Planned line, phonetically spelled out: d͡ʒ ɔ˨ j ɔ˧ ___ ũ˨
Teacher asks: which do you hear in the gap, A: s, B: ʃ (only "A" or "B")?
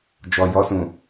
A